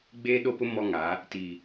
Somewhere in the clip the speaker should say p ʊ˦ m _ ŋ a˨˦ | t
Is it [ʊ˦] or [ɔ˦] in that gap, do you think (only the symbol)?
ɔ˦